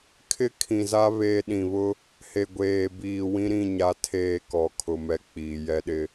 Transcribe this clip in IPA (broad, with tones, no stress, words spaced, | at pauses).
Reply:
kʰɪ˦kʰĩ˨za˦ βe˦ ɗĩ˨βʊ˦ | he˨ɡʷeː˨ biː˨wĩ˦ɾĩ˦˨ ɲa˦tʰeː˦˨kɔ˨kʰʊ˨ mɛ˨ k͡piː˨jɛ˦ɗɪ˦